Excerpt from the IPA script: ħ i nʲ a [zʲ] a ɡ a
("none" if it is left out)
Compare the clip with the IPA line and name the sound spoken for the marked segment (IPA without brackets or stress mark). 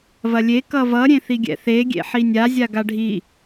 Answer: zʲ